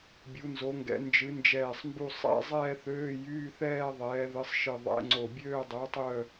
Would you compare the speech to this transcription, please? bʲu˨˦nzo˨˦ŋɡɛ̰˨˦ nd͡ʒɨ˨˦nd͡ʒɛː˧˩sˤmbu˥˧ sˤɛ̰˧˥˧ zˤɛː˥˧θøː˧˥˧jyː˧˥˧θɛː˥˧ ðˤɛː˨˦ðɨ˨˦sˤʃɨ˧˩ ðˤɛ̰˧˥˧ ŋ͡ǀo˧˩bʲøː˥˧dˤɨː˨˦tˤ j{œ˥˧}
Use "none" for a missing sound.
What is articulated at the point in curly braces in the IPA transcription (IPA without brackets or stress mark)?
œ˥˧